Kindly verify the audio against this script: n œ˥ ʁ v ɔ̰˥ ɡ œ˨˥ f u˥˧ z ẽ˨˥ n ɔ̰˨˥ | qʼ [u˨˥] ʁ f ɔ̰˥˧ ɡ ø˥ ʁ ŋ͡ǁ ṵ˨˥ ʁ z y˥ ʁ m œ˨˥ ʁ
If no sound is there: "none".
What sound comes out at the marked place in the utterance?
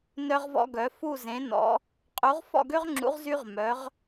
u˨˥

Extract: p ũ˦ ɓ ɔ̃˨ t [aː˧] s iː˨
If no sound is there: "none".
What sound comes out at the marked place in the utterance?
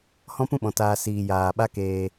aː˧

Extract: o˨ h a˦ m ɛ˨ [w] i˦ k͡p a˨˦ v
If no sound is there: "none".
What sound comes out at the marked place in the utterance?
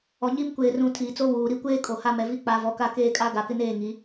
v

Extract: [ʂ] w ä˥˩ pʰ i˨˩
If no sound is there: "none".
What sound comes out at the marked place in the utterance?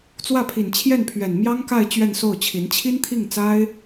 t͡s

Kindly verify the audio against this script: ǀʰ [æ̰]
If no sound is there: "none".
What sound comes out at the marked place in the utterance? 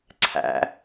æ̰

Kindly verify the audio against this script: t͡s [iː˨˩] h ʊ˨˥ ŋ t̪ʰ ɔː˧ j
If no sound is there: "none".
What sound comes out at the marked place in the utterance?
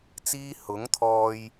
iː˥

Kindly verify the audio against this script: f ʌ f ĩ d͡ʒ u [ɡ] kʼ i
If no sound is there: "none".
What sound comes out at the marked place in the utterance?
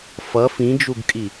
ɡ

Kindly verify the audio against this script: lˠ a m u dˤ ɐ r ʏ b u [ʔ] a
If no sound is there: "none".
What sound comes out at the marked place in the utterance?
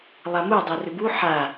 ħ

